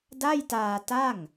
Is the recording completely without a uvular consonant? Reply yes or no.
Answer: yes